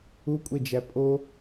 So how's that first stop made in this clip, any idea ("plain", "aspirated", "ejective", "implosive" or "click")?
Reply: ejective